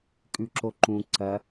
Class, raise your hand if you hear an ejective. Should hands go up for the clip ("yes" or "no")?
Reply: yes